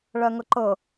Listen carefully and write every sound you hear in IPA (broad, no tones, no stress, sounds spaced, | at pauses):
ɭ ɜ ŋ ɤ ǃ ɤ